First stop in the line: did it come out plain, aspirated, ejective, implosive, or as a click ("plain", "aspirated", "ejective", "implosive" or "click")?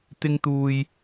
plain